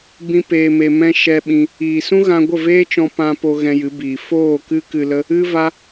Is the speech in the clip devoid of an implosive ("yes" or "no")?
no